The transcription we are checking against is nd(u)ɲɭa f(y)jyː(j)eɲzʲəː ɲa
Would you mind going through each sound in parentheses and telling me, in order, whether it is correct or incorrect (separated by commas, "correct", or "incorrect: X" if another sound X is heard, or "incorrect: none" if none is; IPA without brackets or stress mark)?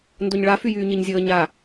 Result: incorrect: o, correct, incorrect: ɲ